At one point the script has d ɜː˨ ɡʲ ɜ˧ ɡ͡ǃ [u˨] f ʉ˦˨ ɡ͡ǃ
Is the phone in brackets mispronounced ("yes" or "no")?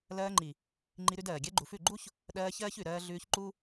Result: no